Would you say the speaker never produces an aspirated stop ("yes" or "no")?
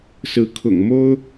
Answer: no